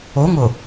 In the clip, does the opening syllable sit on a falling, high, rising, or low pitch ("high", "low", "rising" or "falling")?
rising